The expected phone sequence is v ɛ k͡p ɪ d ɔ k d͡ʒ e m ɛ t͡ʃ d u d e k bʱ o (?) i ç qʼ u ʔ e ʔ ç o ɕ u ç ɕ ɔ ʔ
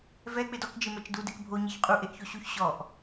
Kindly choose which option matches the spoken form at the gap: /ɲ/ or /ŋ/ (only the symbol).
ɲ